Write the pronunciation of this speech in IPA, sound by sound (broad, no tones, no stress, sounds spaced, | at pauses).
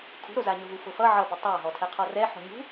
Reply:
kʰ ṳ ɾ o z a ɲ ʊ ɦ u f ʊ f ʌ ʕ ʌ b ʊ tˤ a ɦ ɔ tʰ ɛ qʰ ɔ r ɛ ħ o̤ ɲ ṳ